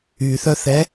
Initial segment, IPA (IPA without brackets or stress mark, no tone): y